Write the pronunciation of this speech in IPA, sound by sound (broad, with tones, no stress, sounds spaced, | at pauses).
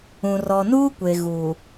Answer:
ũ˨ r ɔ˨ n uː˦ kʷ e˨ ɣ u˨